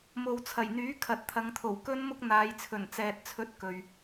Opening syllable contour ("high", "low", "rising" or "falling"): low